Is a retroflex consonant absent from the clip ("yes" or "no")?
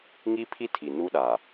yes